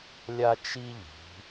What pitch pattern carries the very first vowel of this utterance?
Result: high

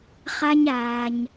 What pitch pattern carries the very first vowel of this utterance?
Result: high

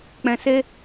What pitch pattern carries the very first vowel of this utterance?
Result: low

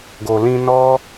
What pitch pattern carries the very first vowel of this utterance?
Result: low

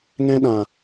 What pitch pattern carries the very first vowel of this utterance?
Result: high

